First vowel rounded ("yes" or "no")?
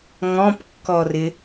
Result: yes